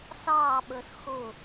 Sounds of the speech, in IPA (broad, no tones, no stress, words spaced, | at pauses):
sɑːɓəːs xʊ